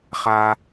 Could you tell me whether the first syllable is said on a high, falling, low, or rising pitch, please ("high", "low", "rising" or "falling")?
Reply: low